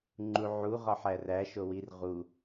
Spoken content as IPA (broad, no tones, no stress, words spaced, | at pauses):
ŋ͡ǃuʕu ʁɒħæræ ʃowir ʁu